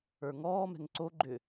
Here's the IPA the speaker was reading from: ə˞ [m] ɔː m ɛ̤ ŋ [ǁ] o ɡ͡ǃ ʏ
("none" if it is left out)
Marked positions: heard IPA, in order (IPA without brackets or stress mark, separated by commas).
ŋ, ǀ